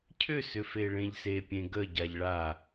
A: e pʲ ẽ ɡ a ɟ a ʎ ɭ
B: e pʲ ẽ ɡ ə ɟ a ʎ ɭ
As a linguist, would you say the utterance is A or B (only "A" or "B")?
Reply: B